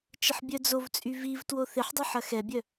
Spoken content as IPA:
t͡ʃ ə ħ bʲ œ d͡z o v t͡sʼ y v i v t w o θ ɪ ħ dˤ ʏ ħ ɐ x ɛ bʲ œ

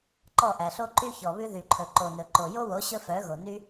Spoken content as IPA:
ǃ ɔ˦˨ ʔ æ˨ ɬ o˦ ǃ y˦ ç ɔ˨ β ʉ˧ ð y˨ ǃʰ ɵ˨ ǃ o˨ n ɵ˨ ǃ o˨ j o˦ w o˨˦ ɕ ɵ˦ f œ˨˦ ɣ o˨ n y˦

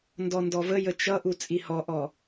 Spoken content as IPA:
n d ɔ n d ɔ v ə j ə t͡ʃ ʌ ʔ u t͡sʼ i h ɔ ʔ ɔ

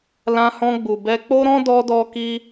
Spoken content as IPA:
l ã˧ h ɔ̃˧ ɡ͡b u˨ b ɛ˧ k͡p o˦ ɾ ɔ̃˦ d ɔ˦ d ɔ˦ k i˦

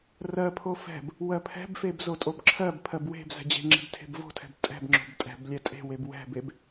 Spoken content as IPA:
r ɜ pʰ o f ɛ̤ b | w ɜ pʰ ɛ̤ b f e b z o tʼ o b ǁʰ ɜ b pʰ ɜ b w e̤ b z ɛ̤ d͡ʑ e̤ ŋ͡ǁ e̤ b tʰ e̤ b v o̤ tʰ ɛ̤ b tʼ ɛ̤ b ŋ͡ǁ o̤ b tʼ ɛ̤ b lʲ ɛ tʼ e̤ w e b w ɛ̤ b e b

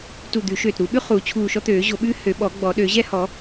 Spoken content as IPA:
t u˧˩ d̪ ʉ˨˩˦ ʃ øː˧˩ t ɾ u˨˩˦ ɓ ʉ˥ χ uː˨˩˦ t͡ɕʰ uː˧˩ ʃ ɔ˥ t̪ øː˨˩˦ ʑ o˨˩˦ ɓ ʉː˥ h ø˨˩˦ ɓ ɔ˨˩˦ ɡ͡b ɔ˨˩˦ ɗ ø˨˩˦ ʑ ɛ˥ h ɔ˨˩˦

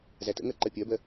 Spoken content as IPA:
z æ t ə̰ ŋ ɜ ǃ ɜ pʲ ɜ b ɜ

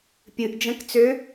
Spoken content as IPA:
pʲ ɨ ʔ d͡ʒ ə̃ k t͡s ø

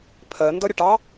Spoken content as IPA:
pʰ ɜ n d ʌ ɾʲ ʌ ʈ ɑ

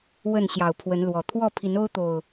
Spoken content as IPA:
w ə˥˨ n ɕ j ɑ˨˩ ʊ̯ pʰ w ə˨˦ n l w ɔ˨˩ t̪ʰ w ɔ˥˨ pʰ i˨˦ n o˦ ʊ̯ t̪ o˨˩ ʊ̯

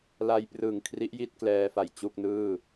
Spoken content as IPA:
l a˧ j p r ɯ˨˩ ŋ kʰ r i˦˥ ʔ j i˥˩ t̚ k l ɛː˧ f a˨˩ j t͡ɕ u˥˩ k̚ n ɯː˥˩

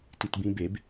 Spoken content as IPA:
t i t b ĩ b e b

